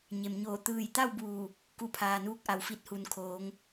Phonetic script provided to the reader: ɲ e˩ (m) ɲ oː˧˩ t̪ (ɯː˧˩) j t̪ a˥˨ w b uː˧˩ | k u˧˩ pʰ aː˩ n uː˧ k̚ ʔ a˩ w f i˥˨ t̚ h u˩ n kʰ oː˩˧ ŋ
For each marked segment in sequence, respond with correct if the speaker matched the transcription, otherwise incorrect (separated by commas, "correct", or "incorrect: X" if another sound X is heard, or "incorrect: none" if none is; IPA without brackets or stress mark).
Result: correct, correct